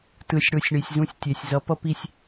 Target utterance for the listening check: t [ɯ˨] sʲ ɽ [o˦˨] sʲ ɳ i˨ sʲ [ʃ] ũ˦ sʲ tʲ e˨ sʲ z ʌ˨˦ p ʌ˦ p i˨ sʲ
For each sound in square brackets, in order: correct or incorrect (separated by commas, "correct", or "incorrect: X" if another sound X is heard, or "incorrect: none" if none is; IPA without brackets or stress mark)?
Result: correct, correct, incorrect: z